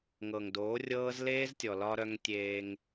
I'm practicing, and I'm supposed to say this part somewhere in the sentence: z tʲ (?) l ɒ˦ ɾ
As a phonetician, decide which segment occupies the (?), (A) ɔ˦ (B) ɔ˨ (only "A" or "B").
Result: B